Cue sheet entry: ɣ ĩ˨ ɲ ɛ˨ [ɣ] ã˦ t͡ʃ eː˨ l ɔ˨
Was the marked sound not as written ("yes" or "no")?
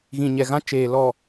no